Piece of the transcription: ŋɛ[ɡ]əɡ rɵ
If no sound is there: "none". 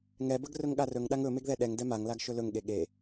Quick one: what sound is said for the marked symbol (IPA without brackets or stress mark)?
b